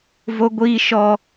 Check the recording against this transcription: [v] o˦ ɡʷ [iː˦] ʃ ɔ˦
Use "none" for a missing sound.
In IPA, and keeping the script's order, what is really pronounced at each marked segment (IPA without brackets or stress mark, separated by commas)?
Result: v, iː˦